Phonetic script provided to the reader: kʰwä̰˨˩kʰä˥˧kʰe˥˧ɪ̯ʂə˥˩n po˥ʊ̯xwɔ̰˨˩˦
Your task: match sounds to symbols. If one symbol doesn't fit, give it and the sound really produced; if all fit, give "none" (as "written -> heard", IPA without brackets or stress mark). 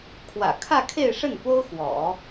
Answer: none